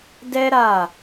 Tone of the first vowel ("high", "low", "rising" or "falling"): high